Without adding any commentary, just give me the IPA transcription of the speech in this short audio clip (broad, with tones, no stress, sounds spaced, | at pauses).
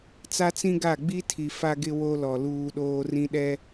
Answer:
t͡s a˦ t͡s ĩ˦ ɡ a˦˨ ɡ͡b i˦ tʰ i˨ f a˦ ɡ ɪ˦ w o˦ l ɔ˨ l uː˦ ɗ oː˦ r ĩ˦ ɗ ɛ˦